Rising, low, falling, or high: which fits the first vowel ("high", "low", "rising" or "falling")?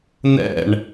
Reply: falling